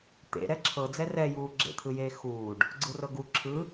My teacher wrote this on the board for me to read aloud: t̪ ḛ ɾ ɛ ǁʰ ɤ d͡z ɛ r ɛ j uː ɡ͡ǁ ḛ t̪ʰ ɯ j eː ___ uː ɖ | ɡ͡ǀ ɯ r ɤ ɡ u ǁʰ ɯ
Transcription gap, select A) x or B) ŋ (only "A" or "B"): A